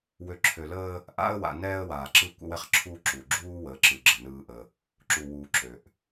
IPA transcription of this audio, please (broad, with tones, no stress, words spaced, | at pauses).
wø˨ǁʰø˨ləː˦ | ʔa̰˦ə̯wa̰˨ nɛː˦ə̯waː˨ǁɯ˦ kʷə̰˦wɛ˦χǁʰuː˦ ǁu˨ ɡ͡ǁuː˦wəː˨˦ǁɯ˨ɡ͡ǁə˨ nɯː˦ʔə˦ | ǁu˨wuː˨ ǁø˨ʔ